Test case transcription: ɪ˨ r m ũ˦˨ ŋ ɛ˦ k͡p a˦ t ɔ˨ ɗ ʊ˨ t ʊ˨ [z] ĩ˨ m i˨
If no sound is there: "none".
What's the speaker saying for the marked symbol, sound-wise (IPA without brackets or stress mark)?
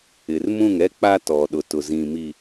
z